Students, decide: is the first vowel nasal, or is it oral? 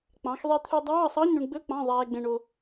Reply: nasal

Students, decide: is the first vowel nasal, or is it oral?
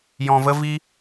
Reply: nasal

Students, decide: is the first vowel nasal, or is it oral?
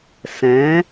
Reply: nasal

